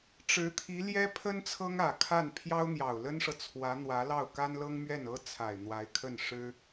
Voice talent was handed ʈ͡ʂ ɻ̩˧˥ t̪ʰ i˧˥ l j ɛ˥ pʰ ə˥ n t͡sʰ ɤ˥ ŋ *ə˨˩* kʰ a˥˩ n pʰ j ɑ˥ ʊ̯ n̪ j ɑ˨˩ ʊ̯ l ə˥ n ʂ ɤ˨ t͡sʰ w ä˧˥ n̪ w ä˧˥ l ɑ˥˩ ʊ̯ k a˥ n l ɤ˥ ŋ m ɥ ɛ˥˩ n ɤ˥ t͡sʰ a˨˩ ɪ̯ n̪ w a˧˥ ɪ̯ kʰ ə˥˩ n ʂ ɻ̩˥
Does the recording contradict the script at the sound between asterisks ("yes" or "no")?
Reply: yes